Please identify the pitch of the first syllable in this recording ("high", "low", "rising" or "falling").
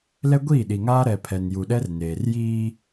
high